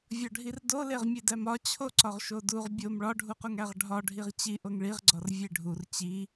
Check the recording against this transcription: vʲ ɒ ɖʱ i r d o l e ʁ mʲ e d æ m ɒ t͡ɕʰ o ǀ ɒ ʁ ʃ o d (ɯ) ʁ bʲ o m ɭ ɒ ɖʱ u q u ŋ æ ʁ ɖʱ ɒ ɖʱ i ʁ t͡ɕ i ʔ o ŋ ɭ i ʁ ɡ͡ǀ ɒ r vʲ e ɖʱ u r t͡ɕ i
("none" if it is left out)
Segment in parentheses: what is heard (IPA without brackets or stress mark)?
u